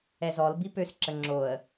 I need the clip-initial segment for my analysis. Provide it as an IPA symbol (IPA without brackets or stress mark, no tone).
ɛ